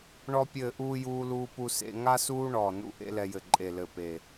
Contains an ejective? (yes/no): yes